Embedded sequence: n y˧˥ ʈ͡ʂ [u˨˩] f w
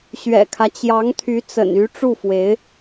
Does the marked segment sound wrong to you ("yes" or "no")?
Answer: yes